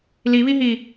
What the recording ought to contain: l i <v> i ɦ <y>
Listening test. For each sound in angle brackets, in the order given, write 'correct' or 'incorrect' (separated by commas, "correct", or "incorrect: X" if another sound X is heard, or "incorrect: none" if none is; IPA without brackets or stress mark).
incorrect: β, incorrect: i